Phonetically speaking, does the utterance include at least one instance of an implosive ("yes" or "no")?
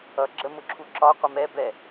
no